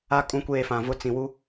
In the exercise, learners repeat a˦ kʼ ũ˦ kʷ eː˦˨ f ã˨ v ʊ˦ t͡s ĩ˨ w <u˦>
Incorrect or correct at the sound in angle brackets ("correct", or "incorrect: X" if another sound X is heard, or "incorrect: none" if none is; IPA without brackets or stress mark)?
correct